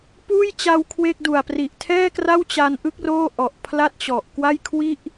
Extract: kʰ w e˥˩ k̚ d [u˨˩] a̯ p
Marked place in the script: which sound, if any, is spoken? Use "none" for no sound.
u˨˩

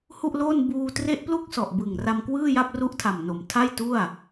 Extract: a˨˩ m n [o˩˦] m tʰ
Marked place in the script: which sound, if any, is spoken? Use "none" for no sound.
o˩˦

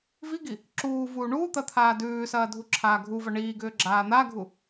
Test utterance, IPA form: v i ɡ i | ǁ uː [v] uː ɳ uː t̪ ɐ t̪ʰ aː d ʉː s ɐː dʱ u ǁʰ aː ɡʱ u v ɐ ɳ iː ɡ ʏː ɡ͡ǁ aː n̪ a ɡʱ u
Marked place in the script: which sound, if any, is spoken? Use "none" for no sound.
v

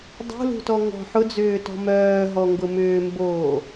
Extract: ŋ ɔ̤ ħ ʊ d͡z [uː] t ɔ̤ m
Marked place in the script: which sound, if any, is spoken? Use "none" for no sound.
ʏː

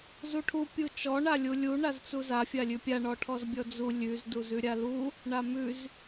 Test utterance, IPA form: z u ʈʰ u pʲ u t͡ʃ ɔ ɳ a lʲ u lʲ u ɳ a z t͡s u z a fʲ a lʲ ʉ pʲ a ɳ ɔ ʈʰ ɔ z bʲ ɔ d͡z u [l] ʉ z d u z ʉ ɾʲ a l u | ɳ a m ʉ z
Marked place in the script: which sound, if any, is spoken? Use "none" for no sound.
lʲ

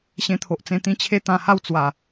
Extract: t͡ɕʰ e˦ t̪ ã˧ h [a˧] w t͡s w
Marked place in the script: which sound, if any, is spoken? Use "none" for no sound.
a˥˧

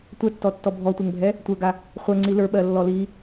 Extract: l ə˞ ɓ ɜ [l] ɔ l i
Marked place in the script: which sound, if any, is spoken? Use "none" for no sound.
lː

